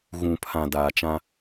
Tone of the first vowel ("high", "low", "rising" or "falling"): low